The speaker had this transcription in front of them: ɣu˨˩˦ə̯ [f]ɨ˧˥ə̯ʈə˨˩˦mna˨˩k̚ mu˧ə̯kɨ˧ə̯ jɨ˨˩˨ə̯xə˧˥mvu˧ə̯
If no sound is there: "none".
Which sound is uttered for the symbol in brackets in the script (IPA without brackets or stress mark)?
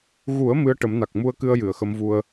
m